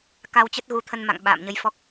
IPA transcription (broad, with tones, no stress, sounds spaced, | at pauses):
k a˧ w t͡ɕ ə˦˥ t̚ ɣ u˨˦ t̪ʰ ə˧ n m a̰˧˨ ŋ ɓ a̰ː˧˨ m ɲ ə˨˦ j f ɔ˦˥ k̚